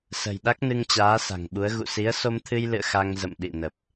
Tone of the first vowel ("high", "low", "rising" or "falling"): low